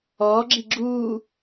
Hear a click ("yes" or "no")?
yes